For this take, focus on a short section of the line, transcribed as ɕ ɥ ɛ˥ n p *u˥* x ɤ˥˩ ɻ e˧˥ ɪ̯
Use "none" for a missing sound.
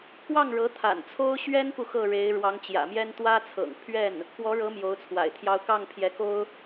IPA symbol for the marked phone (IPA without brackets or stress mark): u˨